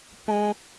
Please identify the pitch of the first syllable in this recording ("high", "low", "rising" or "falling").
high